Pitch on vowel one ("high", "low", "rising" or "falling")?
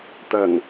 low